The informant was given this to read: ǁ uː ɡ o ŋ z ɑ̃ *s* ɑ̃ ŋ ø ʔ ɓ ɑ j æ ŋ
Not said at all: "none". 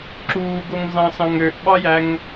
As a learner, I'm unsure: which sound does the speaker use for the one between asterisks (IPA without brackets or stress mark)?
s